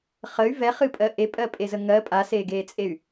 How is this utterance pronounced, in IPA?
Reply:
χ ə y̯ v ɛ χ ɨ pʼ ɜ ʔ e pʼ ɜ pʼ e z ə ŋ ɜ pʼ a s eː ɡ eː t͡sʼ e y̯

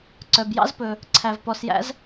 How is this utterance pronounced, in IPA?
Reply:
ǀ œ˩ b j ɑ̰˥ z p ɵ˩ | ǀʰ æ˩ v p ɔ˩ s j æ̰˥ z

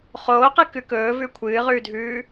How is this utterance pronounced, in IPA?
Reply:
χ oː q ɨ k ʉ k ɵː v ʉ kʷʰ ɨː ʁ ʉː dʱ ʉː

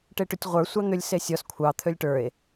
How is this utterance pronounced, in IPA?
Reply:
ʈ e ʈ ʏ tʲ ʁʷ ə˞ sʷ ɑ n̪ ʏ lʲ s e sʲ ɔ s kʷʰ ɑ t̪ʰ ø lʲ ʈ ə˞ e̯

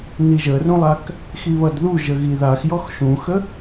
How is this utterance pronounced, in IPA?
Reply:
n i ʒ ə r ũ lˠ a k | x i β ʌ d ð u ʒ ə ɣ i ð a x j ɔ x ʃ ũ x ə

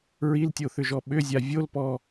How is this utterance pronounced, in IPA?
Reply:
ɹ i l tʲ o θ ʏ ʒ ɔ ɓ ʏ zʲ a vʲ o l p ɔ

